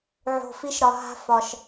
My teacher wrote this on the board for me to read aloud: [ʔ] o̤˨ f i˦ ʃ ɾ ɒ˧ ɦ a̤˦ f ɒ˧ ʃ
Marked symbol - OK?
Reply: no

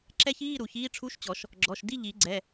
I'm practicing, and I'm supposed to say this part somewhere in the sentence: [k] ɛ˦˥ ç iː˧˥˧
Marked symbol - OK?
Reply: no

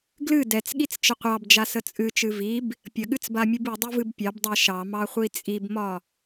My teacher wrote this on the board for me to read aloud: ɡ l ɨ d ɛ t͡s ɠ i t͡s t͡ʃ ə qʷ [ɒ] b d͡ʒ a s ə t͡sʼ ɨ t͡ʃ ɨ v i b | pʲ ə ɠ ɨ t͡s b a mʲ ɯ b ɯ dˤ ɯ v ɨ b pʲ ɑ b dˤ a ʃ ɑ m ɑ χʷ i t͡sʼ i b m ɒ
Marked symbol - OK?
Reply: no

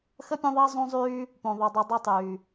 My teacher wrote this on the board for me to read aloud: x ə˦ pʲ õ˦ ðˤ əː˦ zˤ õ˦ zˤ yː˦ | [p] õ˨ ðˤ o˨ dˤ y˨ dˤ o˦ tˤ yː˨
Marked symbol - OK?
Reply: yes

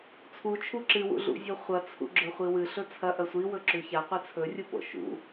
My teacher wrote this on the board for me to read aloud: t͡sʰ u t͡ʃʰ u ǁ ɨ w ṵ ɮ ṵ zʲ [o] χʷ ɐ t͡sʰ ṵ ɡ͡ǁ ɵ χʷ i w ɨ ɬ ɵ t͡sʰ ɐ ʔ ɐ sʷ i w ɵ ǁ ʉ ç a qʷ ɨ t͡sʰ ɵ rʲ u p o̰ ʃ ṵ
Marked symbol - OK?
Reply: yes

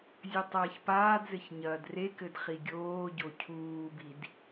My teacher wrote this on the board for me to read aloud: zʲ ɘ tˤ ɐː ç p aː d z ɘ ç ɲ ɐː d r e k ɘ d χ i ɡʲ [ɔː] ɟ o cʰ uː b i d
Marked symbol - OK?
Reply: no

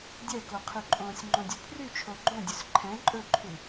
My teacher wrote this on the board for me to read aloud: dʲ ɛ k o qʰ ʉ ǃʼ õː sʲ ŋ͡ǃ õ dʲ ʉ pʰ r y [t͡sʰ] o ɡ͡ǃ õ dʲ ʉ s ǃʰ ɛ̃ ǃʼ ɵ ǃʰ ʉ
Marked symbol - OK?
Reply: no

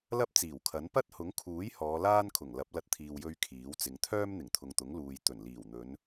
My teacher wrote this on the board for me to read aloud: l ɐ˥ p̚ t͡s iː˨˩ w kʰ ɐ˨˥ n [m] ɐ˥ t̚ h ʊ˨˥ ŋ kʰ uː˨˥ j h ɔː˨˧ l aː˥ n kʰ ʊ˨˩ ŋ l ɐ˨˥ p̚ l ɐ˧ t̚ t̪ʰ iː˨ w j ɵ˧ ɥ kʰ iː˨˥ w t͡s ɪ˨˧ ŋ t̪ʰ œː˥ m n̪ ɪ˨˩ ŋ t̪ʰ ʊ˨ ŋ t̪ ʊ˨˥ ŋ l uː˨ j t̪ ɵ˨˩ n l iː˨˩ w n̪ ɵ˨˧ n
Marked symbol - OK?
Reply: no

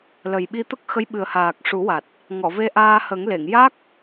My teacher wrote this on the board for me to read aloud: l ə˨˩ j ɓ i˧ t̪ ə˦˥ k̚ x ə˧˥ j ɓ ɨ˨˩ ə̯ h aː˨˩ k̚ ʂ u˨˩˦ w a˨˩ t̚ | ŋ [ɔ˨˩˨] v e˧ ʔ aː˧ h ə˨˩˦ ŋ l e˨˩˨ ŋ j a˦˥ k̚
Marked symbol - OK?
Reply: yes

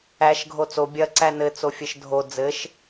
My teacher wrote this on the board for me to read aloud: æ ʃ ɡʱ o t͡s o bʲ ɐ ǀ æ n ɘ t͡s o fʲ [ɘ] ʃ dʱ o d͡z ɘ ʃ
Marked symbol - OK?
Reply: yes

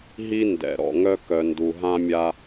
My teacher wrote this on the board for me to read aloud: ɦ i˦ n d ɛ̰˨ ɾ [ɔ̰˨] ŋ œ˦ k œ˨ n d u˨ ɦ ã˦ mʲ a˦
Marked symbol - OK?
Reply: yes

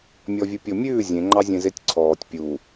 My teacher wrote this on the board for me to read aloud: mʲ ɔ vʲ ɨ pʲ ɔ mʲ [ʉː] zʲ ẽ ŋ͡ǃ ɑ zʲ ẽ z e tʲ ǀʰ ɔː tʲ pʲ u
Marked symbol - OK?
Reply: yes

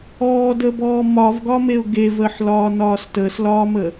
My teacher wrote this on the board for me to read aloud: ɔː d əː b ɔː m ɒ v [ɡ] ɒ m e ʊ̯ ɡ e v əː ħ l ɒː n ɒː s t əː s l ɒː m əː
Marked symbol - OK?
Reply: yes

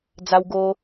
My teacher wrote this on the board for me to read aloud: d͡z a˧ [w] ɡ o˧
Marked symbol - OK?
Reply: yes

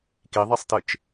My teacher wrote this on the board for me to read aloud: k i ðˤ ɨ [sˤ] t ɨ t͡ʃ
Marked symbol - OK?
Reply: yes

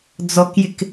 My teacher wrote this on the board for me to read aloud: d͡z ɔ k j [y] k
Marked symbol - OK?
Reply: no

